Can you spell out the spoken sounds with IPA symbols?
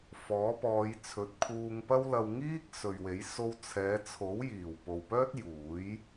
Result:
f ɔː˨˥ p ɔː˨˧ j t͡sʰ ɵ˨˥ t̚ kʰ uː˧ ŋ p ɐ˥ w l ɐ˧ w ŋ iː˥ k̚ s ɵ˨ ɥ w e˨˥ j s o˧ w t͡sʰ ɛː˨˧ t͡sʰ o˨˥ w j iː˨˩ w p o˨ w p œː˥ t̚ j uː˨˥ j

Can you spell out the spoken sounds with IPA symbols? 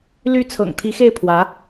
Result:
l y˧˥ t͡sʰ ɤ̰˨˩ ŋ t̪ʰ i˧˥ x e˥˩ ɪ̯ pʰ w ä˧˥

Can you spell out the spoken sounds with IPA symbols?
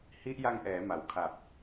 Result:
h i˦˥ ʔ j a˧ ŋ ʔ ɛː˩˦ m a˩˦ w kʰ a˨˩ p̚

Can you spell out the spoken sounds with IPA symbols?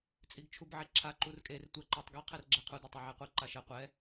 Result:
t͡sʼ i ɡ t͡ʃʰ u b ʕ e ǁʰ a ǃ u r kʼ e r tʷ ɛ ǃ a tˤ ɡ ɛ qʰ ɛ r ɡ͡ǁ ɛ qʰ u d ə tˤ e ʕ e qʷ i ǃ a ʃ ɛ qʷ ɛ

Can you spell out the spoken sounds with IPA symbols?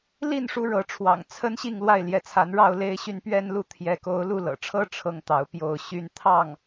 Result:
l i˥˩ n ʂ u˥ ɻ ɤ˧˥ ʈ͡ʂʰ w ɑ̰˨˩ ŋ t͡sʰ ə˥ n ɕ i˥˧ ŋ l w a˥˩ ɪ̯ l j ɛ˧˥ t͡sʰ a˧˥ n ɻ ɑ˥˧ ʊ̯ l e˥˧ ɪ̯ ɕ y˥˧ n p ɥ ɛ˥˧ n l u˥˩ t̪ʰ j ɛ˧˥ k o˧˥ ʊ̯ l u˥˩ l ɤ̰˨˩ ʈ͡ʂʰ ɤ˥ ʈ͡ʂʰ ɤ˥ ŋ t̪ ɑ˧˥ ʊ̯ p j o˥˩ ʊ̯ ɕ y˥ n t̪ʰ ɑ˥˩ ŋ

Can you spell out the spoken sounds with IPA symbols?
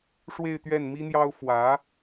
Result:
ʂ w e˥˧ ɪ̯ t̪ ɥ ɛ˥˩ n m i˥ n̪ j ɑ˥ ʊ̯ f w ä˧˥

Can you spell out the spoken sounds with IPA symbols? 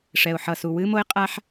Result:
ʂ ɛ˩ ʊ̯ ħ ʌ˩ s u˩ w ɨ˥ m o˥ ɪ̯ qʼ a˥ ħ

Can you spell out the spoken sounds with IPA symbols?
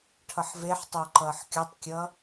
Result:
ʈʰ ʌ ħ v e ħ tˤ o ǃ ʌː ħ kʲ ɔ tˤ kʲ ʌ

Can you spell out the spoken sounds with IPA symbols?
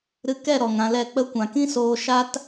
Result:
ɾ ɨ˧ k ɛ˦˨ ɾ ɔ˨ ŋ ã˧ l ɛ˦˨ k͡p ə˦ kʷ ã˨ k ĩ˦ s oː˧ ʃ a˦ t

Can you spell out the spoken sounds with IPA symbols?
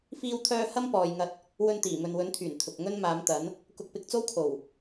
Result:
f iː˥ w t̪ʰ œː˥ h ɐ˥ m p ɔː˨ j ŋ ɐ˧ t̚ | w ɵ˧ n t̪ iː˨˩ m ɵ˨ n w ɵ˨˥ n t̪ʰ yː˨˩ n t̪ʰ ʊ˨ k̚ ŋ ɵ˥ n m aː˨˥ m t̪ ɐ˨˥ n | k ʊ˧ k̚ p ɪ˧ k̚ t͡s o˥ w kʰ o˨˩ w

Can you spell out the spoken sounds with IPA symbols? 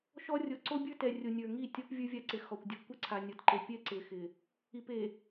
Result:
ʃ ɔ˦ rʲ o˨ ǀ o˦ bʲ ə˞˦ t ɛ˨ rʲ o˨ nʲ ə˞˨ ŋ i˦˨ tʲ ɔ˦ p vʲ ə˞˦ vʲ a˦ ǀ ɪ˨ x ɔ˨ kʷ dʲ ɔ˦ kʷ ɪ˦ ǀʰ a˨ nʲ ɔ˨ t ǃ e˨ pʲ ɛ˦ ǀ ɪ˨ x ɪ˨ | i˨ p e˨

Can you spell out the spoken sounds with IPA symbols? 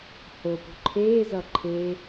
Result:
h o p ṳ ǃʰ eː z ʌ ǃʰ e

